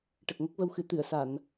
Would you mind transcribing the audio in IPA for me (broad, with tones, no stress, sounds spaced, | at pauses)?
ʈ ə˨˩ k̚ ŋ ə˦˥ k̚ v ə˧ w x ɨ˨˩˦ t̪ ɨ˨˩˨ ə̯ s a˨˩˨ n